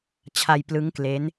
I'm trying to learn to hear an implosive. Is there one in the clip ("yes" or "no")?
no